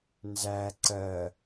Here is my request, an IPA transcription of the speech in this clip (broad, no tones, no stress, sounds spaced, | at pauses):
n z æ ǀ ɜ